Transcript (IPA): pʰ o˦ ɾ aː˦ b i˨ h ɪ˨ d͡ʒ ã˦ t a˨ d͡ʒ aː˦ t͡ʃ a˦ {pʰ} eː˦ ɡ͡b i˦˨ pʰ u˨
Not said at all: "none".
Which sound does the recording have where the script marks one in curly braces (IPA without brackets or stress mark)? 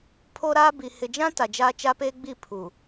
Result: p